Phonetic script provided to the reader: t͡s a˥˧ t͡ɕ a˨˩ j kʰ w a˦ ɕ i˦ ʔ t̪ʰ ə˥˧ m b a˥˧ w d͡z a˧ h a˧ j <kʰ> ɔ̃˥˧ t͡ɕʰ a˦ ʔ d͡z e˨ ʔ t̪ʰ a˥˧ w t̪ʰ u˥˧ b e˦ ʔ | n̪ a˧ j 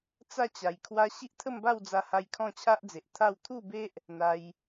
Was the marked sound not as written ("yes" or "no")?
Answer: no